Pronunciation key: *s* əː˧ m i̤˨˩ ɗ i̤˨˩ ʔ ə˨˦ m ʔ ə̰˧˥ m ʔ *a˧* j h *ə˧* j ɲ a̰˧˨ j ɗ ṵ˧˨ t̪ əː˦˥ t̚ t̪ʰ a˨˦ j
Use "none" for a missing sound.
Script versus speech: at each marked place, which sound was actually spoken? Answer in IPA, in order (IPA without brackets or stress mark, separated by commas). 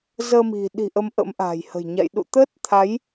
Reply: z, a̤˨˩, ə̤˨˩